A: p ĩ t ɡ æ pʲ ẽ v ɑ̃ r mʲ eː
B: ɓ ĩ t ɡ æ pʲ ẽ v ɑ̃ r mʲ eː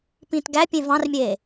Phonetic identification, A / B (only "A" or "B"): A